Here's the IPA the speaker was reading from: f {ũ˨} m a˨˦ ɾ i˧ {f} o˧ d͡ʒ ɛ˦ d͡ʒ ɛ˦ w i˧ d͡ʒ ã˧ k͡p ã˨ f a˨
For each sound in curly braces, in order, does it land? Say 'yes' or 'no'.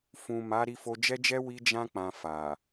yes, yes

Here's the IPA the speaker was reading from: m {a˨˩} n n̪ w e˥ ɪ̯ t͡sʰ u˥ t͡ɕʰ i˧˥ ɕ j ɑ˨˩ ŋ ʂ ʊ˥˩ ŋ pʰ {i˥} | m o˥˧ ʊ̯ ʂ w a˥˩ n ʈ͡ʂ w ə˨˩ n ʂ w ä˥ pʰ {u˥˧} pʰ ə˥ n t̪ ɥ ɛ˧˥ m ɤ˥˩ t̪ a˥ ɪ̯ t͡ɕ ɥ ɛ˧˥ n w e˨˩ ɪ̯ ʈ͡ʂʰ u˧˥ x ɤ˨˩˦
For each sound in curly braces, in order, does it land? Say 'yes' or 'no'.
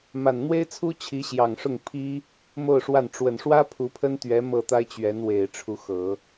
yes, yes, no

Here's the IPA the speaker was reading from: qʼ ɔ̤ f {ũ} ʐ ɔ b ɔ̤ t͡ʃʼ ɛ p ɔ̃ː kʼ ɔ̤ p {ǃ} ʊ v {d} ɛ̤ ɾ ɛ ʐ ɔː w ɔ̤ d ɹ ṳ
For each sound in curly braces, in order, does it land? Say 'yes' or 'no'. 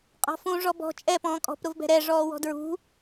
yes, no, no

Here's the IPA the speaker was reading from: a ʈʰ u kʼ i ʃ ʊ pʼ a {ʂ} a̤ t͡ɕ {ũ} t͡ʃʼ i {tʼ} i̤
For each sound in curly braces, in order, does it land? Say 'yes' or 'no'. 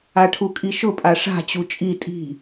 yes, no, yes

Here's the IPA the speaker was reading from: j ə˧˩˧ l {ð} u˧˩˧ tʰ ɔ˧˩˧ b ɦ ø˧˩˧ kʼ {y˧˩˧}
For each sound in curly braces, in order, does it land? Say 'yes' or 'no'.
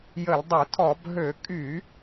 no, yes

